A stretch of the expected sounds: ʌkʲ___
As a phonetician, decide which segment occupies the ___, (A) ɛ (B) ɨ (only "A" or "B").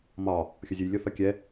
A